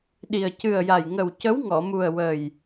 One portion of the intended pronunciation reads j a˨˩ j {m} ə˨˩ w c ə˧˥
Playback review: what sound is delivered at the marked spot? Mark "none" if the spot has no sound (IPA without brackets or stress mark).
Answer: ŋ